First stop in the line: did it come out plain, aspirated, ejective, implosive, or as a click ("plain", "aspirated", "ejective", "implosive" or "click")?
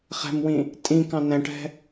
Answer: ejective